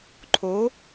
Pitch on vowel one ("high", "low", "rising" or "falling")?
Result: rising